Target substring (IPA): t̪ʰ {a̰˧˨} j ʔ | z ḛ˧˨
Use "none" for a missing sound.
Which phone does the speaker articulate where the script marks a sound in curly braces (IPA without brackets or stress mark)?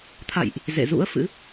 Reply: a̰˧˨